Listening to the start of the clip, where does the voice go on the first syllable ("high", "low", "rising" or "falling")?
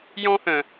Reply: high